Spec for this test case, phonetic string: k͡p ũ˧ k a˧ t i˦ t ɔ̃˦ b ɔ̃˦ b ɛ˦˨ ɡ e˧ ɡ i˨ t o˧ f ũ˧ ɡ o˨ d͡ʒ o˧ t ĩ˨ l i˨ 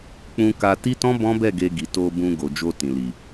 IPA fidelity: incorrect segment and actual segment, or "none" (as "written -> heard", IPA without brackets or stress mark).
f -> b